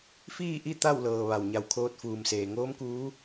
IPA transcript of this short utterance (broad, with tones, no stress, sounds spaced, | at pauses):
f iː˥˨ ʔ i˥˨ t̪ a˥˨ w l ɤː˩ ʋ a˩ w ɲ a˧˩ w kʰ oː˧ t̚ f uː˩ m s eː˩ ŋ oː˧˥ m k uː˧˥